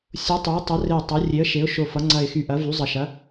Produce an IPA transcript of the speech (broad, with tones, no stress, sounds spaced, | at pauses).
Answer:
sʲ o˩˧ tˤ y˩˧ ə̯ tˤ ə˩˧ r e˨˩ tˤ ɐ˩˧ rʲ e˩˧ ə̯ ʃ e˩˧ ʊ̯ ʃ o˨˩ f ʌ˩˧ ŋ͡ǀ ɐ˨˩ ɪ̯ x y˨˩ ʔ ɐ˩˧ v y˩˧ zˤ ʌ˨˩ ʃ ɐ˩˧